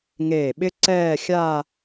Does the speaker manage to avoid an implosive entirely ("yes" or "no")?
no